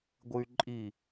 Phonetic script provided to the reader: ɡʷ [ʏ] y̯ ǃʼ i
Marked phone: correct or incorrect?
incorrect